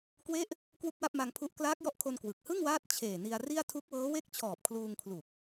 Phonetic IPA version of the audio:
kwe˦˥ʔ | kwu˥˩k̚wa˥˩p̚ma˧ŋpʰu˦˥ʔ klaː˦˥k̚jɔ˦˥ʔkʰo˧n kwɯ˨˩k̚ hɯ˥˩ŋwaː˦˥t̚ t͡ɕʰeː˨˩ ni˧a̯ri˥˩a̯ tʰu˦˥k̚wɤː˦˥we˥˩k̚t͡ɕʰɔː˨˩p̚ kʰluː˧ŋkʰlu˨˩k̚

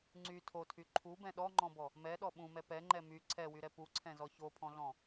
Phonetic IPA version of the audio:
ŋ͡ǀy tʰotʰy ǃʰubɛ̃ ɗɔŋ͡ǃɔ̃bɔ | mɛɗɔ ɓũmɛ pɛŋ͡ǃɛ my ǀʰɛwyɾɛ puǀʰɛ̃zɔ çopʰɔ̃ɮɔ̃

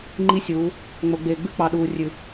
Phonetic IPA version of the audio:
ŋ͡ǃi˦sʲuː˨˦ | ŋ͡mo˨ɡ͡beː˨ɡ͡bʉ˦ k͡pɑ˨ɗuː˨rʲʉ˨

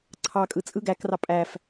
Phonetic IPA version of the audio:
ǀʰɑkʼɯ t͡sʼɯ ɡækrɑ pʼæf

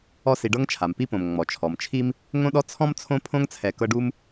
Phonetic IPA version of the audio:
ɔ˦si˨ɖɤ˥ŋ t͡ʃʰa˩mpi˦põ˩m ŋ͡mɔ˩t͡ʃʰɔ˩mt͡ʃʰi˥m | ŋõ˥ɗɔ˥ t͡sʰɔ̃˦mt͡sʰõ˦ pʰõ˦ŋt͡sʰɛ˨ kɤ˦ɖu˥m

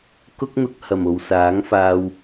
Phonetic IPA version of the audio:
kʊ˥k̚n̪ʊ˧k̚ hɐ˨˩mo˨wsaː˨˥ŋfaː˧w

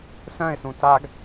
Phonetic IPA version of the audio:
sœ̃ɪ̯sũ taɡ

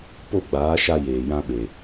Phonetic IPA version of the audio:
po˦˨ɡ͡baː˨˦ʃa˧ jeː˨jã˧ɓe˨

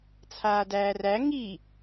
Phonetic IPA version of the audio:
t͡sʰaːdæːræ ŋi

